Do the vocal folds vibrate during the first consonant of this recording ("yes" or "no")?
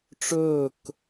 no